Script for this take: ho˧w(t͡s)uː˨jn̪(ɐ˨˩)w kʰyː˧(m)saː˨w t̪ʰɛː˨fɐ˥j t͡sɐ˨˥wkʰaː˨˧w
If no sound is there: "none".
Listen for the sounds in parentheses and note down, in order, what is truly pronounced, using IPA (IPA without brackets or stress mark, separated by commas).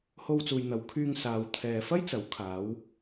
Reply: t͡s, ɐ˨˧, ŋ